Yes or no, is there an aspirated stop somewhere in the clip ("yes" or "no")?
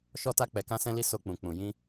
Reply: no